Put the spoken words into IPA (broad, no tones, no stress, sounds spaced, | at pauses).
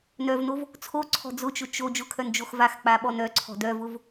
n œ v n o v | t͡sʰ o ǀʰ ɔ̤ d͡z ʊ t͡ʃ ʊ t͡ʃ o d͡ʒ ʊ kʰ œ n d͡ʒ o x v a x k͡p a ɓ ɔ n œ ǀʰ ɔ̤ d œ v ʊ v